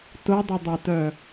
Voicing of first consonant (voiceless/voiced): voiceless